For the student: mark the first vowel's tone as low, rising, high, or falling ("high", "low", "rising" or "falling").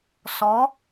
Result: rising